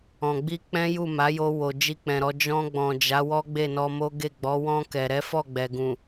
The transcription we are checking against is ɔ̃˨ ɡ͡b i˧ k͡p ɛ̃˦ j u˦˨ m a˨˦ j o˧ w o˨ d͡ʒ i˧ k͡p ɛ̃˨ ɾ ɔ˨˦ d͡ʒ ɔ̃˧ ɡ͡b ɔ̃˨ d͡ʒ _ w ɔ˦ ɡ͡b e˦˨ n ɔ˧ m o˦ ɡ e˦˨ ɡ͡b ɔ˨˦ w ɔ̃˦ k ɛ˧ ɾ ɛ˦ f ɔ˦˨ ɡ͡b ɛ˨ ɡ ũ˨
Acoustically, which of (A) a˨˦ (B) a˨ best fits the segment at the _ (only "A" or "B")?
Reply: A